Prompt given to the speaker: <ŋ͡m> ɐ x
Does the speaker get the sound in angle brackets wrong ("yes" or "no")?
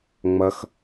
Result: no